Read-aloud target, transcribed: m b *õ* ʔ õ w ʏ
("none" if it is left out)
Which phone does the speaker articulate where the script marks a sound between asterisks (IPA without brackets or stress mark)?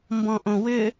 ɔ̃